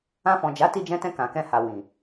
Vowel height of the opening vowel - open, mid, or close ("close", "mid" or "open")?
open